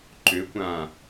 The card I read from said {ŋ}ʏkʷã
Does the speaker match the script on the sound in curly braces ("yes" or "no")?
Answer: no